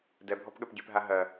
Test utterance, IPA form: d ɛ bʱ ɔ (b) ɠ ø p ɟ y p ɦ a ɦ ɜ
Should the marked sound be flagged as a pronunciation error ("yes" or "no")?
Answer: yes